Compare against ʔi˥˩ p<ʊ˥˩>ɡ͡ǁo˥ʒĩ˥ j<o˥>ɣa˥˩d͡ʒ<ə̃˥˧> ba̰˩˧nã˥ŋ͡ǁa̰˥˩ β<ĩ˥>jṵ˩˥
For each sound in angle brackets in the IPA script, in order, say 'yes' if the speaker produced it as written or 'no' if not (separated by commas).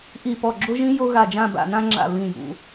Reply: no, yes, no, no